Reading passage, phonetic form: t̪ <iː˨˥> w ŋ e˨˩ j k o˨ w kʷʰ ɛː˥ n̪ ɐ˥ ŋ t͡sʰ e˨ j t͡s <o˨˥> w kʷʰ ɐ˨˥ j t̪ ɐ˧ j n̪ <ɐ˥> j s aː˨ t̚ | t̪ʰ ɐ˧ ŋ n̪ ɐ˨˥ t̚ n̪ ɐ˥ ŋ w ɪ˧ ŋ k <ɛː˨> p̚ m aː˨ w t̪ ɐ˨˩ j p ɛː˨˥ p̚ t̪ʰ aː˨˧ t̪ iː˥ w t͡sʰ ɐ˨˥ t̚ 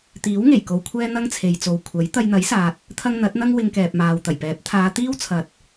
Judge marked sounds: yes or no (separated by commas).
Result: yes, no, no, yes